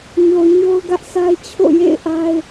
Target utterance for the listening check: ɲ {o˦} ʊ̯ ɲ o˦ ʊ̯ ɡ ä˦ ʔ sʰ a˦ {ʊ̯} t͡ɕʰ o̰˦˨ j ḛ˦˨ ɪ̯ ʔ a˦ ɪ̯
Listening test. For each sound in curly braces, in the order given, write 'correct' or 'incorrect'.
incorrect: o˨, incorrect: ɪ̯

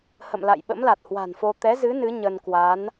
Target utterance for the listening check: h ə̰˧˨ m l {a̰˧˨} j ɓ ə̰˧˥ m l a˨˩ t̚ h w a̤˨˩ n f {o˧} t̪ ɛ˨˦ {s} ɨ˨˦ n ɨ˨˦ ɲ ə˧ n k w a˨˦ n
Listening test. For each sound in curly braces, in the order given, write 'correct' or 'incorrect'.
correct, correct, incorrect: z

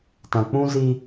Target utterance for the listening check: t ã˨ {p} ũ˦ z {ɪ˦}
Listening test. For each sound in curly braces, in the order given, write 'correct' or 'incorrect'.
incorrect: k͡p, incorrect: i˦

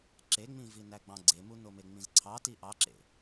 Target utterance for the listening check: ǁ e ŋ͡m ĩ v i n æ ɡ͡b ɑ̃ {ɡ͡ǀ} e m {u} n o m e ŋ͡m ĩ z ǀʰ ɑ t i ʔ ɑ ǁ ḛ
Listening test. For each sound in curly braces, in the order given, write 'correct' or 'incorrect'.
correct, correct

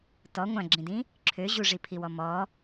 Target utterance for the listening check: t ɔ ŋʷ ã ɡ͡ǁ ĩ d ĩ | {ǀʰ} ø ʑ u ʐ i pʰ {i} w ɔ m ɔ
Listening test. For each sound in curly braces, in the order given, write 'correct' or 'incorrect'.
incorrect: ǁʰ, correct

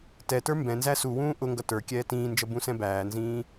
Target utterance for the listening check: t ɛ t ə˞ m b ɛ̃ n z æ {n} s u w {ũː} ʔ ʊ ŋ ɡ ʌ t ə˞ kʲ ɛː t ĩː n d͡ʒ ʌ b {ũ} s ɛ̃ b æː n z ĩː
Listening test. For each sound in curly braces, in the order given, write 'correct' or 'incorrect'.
incorrect: none, correct, correct

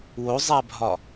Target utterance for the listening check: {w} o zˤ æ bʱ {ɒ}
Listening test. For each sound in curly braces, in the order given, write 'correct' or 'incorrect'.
correct, correct

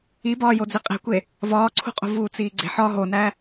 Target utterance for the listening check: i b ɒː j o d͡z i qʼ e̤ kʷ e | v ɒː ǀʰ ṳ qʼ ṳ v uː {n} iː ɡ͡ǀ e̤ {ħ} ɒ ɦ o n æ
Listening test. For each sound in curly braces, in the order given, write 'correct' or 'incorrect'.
incorrect: t͡s, correct

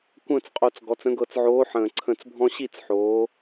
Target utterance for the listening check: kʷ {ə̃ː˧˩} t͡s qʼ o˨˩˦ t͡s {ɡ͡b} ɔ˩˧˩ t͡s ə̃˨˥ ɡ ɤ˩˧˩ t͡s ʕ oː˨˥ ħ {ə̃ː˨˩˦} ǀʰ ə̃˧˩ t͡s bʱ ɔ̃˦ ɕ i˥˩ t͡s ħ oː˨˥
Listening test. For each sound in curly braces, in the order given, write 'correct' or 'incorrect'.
correct, incorrect: ɡ, incorrect: ə̃ː˧˩

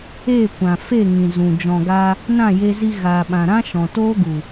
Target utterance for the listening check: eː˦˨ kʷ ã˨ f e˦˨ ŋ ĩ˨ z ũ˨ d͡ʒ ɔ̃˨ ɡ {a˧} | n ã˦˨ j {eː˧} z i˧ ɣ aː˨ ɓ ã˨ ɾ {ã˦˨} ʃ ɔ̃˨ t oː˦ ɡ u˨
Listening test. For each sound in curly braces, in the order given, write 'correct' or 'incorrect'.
correct, incorrect: e˧, incorrect: ã˦

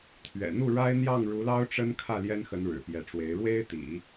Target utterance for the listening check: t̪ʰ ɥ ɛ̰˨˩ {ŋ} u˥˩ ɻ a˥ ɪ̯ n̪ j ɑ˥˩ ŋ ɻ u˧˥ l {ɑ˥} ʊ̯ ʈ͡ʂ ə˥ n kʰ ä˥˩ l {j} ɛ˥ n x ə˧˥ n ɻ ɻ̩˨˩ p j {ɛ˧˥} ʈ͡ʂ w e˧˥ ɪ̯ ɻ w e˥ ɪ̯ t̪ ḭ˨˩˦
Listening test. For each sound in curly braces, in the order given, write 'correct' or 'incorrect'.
incorrect: n̪, correct, correct, correct

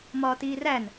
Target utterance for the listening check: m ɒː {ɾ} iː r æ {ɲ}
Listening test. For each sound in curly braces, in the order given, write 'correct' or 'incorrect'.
incorrect: t, incorrect: n

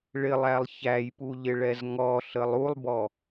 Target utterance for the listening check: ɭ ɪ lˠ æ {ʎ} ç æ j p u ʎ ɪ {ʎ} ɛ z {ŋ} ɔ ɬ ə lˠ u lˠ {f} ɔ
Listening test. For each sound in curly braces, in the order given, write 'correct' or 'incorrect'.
incorrect: lˠ, incorrect: ɭ, correct, incorrect: b

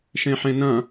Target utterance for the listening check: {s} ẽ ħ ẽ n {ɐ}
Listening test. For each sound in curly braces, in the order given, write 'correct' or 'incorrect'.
incorrect: ʃ, incorrect: ɐ̃

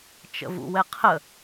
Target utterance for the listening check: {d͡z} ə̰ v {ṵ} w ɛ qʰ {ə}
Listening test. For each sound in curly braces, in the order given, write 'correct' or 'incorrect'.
incorrect: t͡ʃ, correct, correct

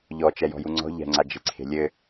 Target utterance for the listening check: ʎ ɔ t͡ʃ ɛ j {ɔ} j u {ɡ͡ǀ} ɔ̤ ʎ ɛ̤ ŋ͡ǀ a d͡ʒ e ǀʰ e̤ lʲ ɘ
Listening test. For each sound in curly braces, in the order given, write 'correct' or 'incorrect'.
incorrect: ɔ̤, incorrect: ŋ͡ǀ

